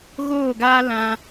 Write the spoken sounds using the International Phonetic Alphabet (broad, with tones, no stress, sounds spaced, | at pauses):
ɣ oː˦˨ ɡ aː˦ l ã˧